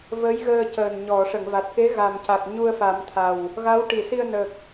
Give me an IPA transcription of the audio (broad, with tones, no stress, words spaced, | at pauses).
və˧˥jɣəː˧cəː˨˩n ɲɔ˨˩˨ ʂə˨˩˨ŋva˨˩t̚ke˧˥ ɣa˨˩mca˨˩k̚ ɲu˧ə̯fa˨˩˦mt̪ʰa˨˩w | ɣa˧˥wʈi˨˩˨si˧ə̯nə˨˩k̚